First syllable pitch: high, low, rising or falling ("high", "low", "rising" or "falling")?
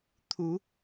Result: rising